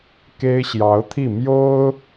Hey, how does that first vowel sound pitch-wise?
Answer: high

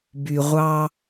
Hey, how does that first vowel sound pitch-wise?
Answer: low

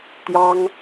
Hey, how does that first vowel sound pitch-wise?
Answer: high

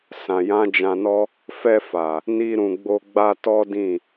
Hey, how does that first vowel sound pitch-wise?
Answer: low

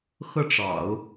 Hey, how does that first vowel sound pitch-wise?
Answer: falling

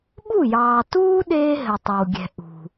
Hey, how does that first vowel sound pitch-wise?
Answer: falling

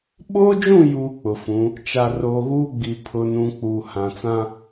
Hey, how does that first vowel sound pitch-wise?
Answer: high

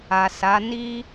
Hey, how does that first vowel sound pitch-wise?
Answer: low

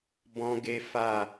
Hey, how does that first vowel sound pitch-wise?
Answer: high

